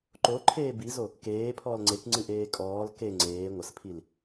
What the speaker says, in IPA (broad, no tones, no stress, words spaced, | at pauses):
ǃoǃʰeː bizo | keːpʰɔːl ŋ͡ǀekŋ͡ǀɨʔeː kʼɔːl ke ŋ͡ǀeː ŋʷɐspʰil